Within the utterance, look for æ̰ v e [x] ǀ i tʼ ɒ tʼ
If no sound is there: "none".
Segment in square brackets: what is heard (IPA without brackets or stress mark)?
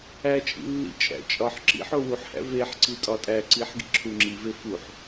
ħ